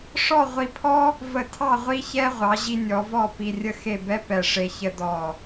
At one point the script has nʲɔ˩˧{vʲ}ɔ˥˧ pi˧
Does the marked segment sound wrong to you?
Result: yes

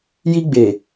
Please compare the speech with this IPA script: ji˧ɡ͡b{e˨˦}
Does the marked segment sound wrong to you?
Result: yes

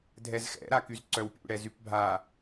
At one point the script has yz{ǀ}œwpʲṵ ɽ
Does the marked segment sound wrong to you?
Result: no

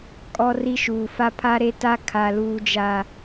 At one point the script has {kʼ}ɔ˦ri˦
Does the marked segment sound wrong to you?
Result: no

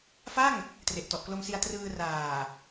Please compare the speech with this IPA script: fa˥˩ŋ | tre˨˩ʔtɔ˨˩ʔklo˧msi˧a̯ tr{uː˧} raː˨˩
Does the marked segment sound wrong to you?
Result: yes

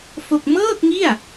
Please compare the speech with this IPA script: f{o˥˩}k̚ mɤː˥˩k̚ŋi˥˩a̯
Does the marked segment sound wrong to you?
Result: no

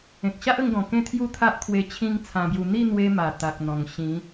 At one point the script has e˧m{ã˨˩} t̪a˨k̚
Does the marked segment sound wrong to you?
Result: yes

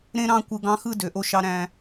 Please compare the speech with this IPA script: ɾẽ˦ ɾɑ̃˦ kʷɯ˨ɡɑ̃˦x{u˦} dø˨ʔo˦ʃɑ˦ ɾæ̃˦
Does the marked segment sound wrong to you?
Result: yes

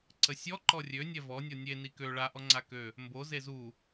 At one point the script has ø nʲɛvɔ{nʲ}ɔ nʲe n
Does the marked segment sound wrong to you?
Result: no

